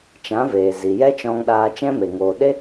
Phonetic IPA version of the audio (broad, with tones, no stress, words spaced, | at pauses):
t͡ʃã˨˦veː˨ zi˨ jɛ˦t͡ʃɔ̃˧ŋɗaː˧ t͡ʃɛ̃˦me˨ ŋoː˨ɗe˦